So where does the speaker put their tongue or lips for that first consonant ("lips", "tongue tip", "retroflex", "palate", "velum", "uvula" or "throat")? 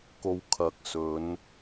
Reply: velum